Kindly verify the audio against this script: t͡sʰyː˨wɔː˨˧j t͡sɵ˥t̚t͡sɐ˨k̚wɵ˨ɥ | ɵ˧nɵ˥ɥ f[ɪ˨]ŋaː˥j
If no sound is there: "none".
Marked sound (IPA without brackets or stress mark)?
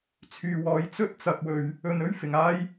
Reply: ɪ˨